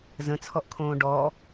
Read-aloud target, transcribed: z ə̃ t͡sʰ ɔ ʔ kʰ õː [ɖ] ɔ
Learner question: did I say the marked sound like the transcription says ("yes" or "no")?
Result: yes